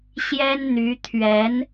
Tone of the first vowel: high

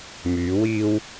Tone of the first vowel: rising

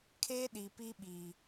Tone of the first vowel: high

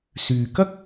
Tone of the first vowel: low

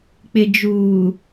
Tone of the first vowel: low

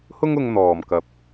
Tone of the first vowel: high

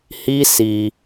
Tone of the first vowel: high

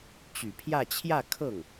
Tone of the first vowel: low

